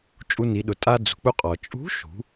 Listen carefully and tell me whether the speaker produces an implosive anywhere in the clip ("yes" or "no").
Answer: yes